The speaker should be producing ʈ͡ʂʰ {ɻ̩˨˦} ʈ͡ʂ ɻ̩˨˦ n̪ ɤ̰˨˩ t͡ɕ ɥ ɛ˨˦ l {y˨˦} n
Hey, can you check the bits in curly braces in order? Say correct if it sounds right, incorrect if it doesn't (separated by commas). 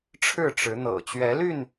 incorrect, incorrect